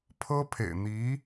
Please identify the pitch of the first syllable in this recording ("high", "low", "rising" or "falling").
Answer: high